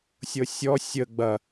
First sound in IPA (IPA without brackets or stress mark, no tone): sʲ